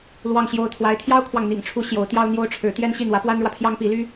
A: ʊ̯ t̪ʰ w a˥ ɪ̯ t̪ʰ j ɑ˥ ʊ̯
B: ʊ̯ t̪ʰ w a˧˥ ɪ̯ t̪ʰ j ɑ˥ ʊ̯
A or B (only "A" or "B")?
B